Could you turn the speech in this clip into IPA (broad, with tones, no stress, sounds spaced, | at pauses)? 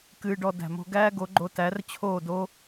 k ɨː˧ ɖ ɔ˧ d æ̤˨ m o̤˧ ɡ æː˦ ɡ o˨˦ ɡ͡ǃ o˧ t æ˨˦ r t͡ɕʰ oː˦˨ d o˦